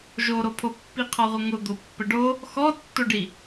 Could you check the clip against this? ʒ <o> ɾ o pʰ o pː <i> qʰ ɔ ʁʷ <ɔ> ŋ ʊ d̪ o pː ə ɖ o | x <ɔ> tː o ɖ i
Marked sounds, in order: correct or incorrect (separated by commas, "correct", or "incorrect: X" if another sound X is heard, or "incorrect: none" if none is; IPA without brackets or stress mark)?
correct, correct, incorrect: ə, correct